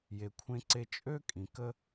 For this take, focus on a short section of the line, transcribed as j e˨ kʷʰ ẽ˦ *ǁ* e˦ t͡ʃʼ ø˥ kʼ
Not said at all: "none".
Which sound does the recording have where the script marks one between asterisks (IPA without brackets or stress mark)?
ǀ